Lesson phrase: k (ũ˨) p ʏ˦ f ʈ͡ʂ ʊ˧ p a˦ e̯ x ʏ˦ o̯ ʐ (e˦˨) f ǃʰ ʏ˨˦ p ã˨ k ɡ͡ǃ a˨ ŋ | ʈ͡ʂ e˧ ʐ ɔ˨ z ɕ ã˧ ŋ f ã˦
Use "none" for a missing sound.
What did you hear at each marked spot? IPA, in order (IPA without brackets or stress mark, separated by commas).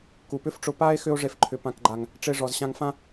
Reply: u˨, e˦˨